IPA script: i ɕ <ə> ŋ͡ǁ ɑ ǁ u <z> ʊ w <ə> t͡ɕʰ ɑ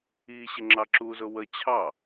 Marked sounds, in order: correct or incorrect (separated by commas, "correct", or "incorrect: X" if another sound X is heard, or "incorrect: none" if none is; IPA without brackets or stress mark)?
incorrect: ɪ, correct, correct